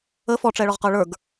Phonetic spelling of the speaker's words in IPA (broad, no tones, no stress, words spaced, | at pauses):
ə fɔʈ͡ʂɛɭɔʁqə˞ ɭə˞ɡ